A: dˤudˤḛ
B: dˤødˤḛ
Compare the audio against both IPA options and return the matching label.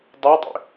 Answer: B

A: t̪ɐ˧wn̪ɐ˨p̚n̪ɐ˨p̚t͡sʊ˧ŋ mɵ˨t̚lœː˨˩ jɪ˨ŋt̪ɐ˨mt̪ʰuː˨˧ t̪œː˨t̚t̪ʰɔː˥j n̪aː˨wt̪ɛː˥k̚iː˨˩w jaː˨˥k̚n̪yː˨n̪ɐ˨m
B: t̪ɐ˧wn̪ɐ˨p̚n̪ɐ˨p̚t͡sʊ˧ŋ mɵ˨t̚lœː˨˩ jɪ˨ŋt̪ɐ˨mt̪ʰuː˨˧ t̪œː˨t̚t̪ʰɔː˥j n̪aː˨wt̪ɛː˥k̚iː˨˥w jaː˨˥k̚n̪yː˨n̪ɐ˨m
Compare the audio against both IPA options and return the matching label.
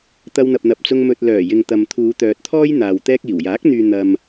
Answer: A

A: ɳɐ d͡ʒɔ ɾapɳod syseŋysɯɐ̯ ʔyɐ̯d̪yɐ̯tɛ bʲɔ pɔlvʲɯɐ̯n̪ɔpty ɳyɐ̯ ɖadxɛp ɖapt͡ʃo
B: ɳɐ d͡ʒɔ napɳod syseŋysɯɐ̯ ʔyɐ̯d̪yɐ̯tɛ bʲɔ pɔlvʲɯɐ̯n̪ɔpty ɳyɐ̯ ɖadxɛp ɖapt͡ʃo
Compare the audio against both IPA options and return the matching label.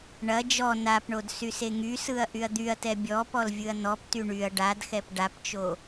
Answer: B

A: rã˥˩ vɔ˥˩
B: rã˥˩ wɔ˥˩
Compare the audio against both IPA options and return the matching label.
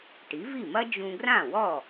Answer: B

